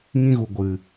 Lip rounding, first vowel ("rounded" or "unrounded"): unrounded